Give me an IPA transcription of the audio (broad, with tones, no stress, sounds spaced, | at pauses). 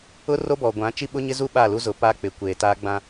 ʊ˦ r o˦ b ɔ˨ ɡʷ ã˨˦ t͡ʃ i˦ ɓ ʊ˦ ɲ ɪ˦ z u˦ ɓ a˦˨ l u˦ z ʊ˨˦ p aː˦ k͡p ɪ˨ kʷ eː˨ t aː˦ ɡ͡b ã˦